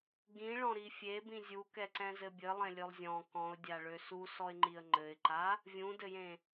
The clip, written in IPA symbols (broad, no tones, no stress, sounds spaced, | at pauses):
ɡ ĩ ɭ ɔ̃ ɾ i fʲ e b ĩ zʲ u k ɛ ǀ ɛ̃ z ɘ bʲ ɘ lˠ ẽ lʲ ø lˠ zʲ ɔ̃ k ɔ̃ ʊ̯ dʲ a ɭ ø s u s ɔ ɪ̯ ŋ͡ǃ i ə̯ ŋ͡ǃ ɘ ɪ̯ ǃ a | vʲ ũ d ɘ j ẽ